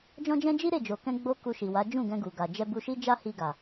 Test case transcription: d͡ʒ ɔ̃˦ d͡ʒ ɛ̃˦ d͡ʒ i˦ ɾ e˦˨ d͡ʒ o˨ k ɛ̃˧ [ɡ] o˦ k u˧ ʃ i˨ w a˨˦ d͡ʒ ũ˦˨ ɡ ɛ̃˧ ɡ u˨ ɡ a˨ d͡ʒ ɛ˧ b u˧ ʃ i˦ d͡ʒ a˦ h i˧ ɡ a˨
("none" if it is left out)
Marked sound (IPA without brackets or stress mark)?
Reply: ɡ͡b